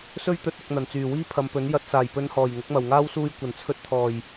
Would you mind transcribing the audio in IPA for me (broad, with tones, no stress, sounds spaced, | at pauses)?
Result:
s ɵ˥ ɥ t̪ ɵ˨˥ t̚ ʊ˨ k̚ n̪ ɐ˨˩ n t͡s yː˨˩ w iː˥ pʰ ɐ˨˧ m p ɵ˨˥ n j ɐ˧ t̚ s aː˨˩ j p ɵ˨˧ n h ɔː˨˩ j ŋ ʊ˨˥ k̚ m ɐ˨˩ w ŋ aː˥ w s uː˧ j kʷ ɐ˨˩ n t͡sʰ ɵ˧ t̚ t̪ʰ ɔː˨˩ j